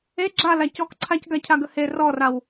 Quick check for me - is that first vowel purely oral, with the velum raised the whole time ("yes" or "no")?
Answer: yes